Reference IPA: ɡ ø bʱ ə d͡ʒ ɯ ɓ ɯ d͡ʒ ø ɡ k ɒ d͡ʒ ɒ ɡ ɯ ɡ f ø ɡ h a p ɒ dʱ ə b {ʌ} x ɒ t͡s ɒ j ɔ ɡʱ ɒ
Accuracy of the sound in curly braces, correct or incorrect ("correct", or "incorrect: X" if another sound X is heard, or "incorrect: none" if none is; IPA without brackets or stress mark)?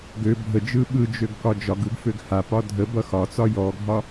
correct